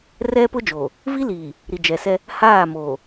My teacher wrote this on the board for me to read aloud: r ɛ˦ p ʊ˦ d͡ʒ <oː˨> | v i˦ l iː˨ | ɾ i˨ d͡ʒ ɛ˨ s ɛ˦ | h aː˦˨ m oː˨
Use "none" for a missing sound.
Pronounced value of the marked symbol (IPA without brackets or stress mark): oː˨